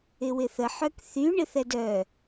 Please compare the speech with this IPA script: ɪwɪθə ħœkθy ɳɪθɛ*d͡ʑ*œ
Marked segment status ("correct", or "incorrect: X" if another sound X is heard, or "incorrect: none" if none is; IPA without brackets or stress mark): incorrect: d